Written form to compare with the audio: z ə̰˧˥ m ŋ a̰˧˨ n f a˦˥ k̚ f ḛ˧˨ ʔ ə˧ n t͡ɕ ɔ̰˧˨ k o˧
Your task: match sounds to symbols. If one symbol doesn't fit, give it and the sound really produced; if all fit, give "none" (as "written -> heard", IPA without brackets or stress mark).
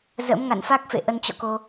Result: none